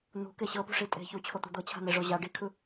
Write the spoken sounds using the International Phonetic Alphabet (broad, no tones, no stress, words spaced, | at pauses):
n̪ṳke ɕɤpṳʂi tʼe̤ çut͡ɕʰot̪ṳ d̪ɤt͡ɕʰa̤n̪eʐo ʑa ɖikʰɯ